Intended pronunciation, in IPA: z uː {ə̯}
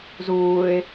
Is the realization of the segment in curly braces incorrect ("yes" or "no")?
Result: yes